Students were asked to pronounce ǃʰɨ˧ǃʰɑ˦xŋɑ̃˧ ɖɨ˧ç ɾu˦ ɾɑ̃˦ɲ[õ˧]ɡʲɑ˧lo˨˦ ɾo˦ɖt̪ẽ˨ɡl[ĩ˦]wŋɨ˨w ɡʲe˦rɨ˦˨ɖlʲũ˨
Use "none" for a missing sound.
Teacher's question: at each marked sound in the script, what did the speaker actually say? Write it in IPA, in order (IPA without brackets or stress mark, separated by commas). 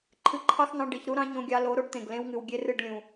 õ˧, ẽ˦